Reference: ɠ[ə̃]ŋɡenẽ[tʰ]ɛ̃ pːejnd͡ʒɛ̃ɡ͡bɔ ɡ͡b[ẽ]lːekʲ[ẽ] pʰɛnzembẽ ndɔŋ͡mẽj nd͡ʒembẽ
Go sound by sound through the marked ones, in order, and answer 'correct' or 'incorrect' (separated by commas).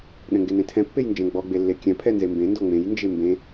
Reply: incorrect, correct, incorrect, incorrect